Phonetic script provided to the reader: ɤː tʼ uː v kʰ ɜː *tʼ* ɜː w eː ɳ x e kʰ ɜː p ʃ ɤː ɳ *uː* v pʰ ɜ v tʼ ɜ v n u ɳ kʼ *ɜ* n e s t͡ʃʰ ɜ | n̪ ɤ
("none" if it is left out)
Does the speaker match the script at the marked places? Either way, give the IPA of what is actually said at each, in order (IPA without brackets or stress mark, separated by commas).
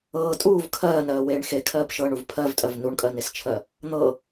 n, u, ɜ